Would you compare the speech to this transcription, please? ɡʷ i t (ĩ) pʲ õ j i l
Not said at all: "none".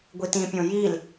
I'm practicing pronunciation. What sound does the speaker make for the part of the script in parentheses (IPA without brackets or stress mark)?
ĩ